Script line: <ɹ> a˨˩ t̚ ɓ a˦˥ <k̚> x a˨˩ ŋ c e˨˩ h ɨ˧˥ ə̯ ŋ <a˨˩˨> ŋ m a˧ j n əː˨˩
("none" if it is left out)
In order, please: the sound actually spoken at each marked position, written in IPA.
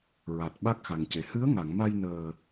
ɹ, k̚, a˨˩˨

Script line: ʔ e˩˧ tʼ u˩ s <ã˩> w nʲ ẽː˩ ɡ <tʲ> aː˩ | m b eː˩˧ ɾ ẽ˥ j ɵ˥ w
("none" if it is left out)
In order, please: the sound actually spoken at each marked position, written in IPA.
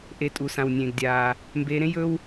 ã˩, dʲ

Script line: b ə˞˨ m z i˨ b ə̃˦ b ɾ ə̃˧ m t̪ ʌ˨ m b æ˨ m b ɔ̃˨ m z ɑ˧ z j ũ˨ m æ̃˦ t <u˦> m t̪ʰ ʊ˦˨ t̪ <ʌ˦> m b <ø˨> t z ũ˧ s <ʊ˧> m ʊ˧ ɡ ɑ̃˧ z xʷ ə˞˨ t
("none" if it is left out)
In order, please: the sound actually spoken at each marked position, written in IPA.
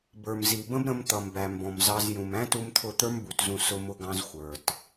u˦, ə˞˦, u˨, ʊ˧

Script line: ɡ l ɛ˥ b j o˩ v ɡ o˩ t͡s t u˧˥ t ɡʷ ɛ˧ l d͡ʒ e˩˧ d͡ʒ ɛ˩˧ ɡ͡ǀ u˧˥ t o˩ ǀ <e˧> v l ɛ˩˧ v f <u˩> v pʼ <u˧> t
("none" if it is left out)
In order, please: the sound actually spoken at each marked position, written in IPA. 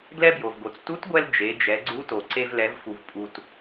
e˧, u˩, u˩

